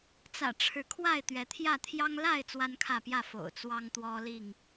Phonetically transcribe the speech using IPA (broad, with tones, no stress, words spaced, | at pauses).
t͡sä̰˨˩ʈ͡ʂʰɻ̩˨˦ kʰwa˥˨ɪ̯ t̪ɥɛ˨˦t̪ʰjä˥˨ t̪ʰjɑ˦ŋ la˥˨ɪ̯ t͡swa˦nkʰä˥˨pjä˥˨ fo̰˨˩ʊ̯t͡swɑ˦ŋ t̪wɔ˦li˥˨ŋ